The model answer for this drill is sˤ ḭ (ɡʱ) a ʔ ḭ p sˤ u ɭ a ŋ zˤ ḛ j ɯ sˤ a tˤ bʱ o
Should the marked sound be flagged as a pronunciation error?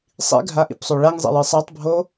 no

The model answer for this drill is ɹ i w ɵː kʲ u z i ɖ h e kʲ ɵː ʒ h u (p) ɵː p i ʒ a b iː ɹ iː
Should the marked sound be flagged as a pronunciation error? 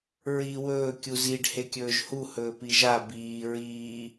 yes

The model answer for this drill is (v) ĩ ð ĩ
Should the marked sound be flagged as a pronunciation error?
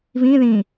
no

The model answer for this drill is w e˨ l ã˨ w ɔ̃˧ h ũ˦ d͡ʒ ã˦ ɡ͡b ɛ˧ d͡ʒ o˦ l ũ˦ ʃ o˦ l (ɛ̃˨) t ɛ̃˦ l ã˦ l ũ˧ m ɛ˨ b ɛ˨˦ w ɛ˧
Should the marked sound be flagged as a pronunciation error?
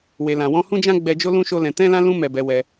yes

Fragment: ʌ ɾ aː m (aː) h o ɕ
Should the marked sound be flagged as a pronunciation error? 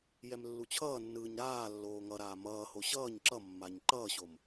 yes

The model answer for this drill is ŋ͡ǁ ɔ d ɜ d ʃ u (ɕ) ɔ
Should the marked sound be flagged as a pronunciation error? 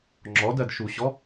no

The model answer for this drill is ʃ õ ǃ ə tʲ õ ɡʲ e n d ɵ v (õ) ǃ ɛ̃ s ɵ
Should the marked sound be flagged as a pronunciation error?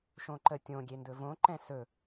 no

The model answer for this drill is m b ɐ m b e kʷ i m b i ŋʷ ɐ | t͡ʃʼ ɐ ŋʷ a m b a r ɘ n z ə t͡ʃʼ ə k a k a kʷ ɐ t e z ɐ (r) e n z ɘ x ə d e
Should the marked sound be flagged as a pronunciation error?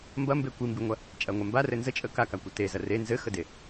no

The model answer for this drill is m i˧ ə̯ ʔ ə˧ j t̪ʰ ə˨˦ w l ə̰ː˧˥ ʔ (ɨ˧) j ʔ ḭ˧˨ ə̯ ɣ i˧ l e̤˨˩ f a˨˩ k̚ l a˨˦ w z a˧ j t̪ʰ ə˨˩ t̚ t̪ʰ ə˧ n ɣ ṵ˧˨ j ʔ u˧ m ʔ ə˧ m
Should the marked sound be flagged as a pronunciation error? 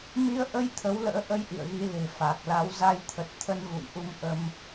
yes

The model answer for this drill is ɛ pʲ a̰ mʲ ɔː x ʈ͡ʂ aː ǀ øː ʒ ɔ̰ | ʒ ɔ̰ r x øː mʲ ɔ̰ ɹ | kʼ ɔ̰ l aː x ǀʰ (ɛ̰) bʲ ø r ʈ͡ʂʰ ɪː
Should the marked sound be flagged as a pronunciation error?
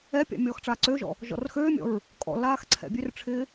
no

